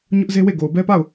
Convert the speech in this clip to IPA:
ɲ ʊ˦ ʔ z e˦ w e˦˨ ɡ o˨ ʊ̯ b ɛ˦ p a˦˨ ʊ̯

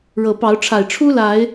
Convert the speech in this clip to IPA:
ɻ ɤ˨˩ p ɑ˨˦ ʊ̯ ʈ͡ʂʰ a˨˩ ɪ̯ ʈ͡ʂʰ u˦ l a˨˦ ɪ̯

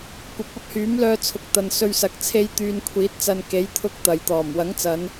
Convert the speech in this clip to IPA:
kʷ ɐ˨ p̚ ɐ˥ p̚ h yː˨˥ m l œː˧ t͡sʰ ʊ˨ k̚ t̪ ɐ˨ n s ɵ˧ ɥ s ɐ˨ k̚ t͡sʰ e˧ j t̪ yː˧ n kʷʰ iː˨˥ t̚ t͡s ɐ˧ n k e˨˥ j t̪ʰ ʊ˧ k̚ t̪ ɐ˨ j t̪ ɔː˨˩ m w ɐ˨˥ ŋ t͡s ɐ˨˧ n

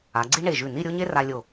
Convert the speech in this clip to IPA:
a˩˧ ɡ͡ǀ i˥ ɳ e˧˩ ʒ ʉ˧˩ n i˥˧ ɾʲ o˥ ɲ e˥ r a˧ lʲ o˧˩

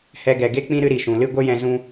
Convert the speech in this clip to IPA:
h ɛ˧ ɡ ɛ˨ ɡ e˦ k͡p ĩ˦ ɾ ɨ˦ ɾ i˨ ʃ ũ˨ l ɨ˦ ɡʷ ə˦ j ɛ̃˧ z ũ˧

